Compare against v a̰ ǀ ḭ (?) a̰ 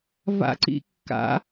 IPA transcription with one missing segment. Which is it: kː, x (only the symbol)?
kː